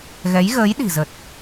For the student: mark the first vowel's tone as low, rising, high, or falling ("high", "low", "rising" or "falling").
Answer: rising